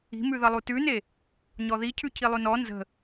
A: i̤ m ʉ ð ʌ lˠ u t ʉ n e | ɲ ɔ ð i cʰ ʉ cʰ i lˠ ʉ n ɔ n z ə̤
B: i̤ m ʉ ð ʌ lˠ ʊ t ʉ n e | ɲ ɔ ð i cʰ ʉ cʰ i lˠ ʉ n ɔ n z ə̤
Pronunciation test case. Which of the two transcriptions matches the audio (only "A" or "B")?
A